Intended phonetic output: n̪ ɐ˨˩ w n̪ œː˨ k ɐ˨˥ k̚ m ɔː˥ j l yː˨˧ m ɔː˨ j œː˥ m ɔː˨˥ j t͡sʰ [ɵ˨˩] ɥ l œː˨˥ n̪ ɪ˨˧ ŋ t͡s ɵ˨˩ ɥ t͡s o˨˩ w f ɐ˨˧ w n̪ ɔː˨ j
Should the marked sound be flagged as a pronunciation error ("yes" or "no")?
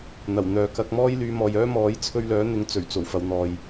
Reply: yes